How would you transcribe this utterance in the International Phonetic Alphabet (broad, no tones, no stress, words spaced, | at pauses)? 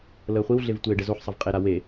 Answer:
ləːχʷiwɮev tʷeːɖɛzoħsˤav qʼeɾa we